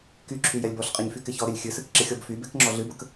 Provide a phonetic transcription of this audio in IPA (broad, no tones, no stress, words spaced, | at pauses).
kyǁʰy jɛlʲbɔɬqʼeɲ fykɪçɔɾɪlʲ xʲɨsɨk ǁɪxʲɔbfybek ŋ͡ǁɔɮɨbək